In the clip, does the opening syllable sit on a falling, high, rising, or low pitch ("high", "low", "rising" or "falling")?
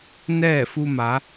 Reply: falling